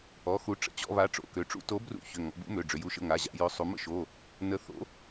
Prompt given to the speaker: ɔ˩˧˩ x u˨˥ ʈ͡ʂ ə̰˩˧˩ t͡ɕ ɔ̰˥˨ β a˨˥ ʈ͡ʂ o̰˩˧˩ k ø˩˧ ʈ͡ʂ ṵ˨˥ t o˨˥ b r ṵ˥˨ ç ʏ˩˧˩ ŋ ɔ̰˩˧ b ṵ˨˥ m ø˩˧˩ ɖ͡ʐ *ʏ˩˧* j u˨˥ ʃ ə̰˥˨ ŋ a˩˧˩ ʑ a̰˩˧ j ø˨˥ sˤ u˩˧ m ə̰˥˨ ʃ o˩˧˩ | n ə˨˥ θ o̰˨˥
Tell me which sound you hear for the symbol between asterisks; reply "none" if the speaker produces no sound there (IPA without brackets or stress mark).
ʏ˩˧